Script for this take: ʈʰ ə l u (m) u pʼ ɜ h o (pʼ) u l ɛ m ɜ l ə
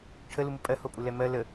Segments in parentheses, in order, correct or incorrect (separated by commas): correct, correct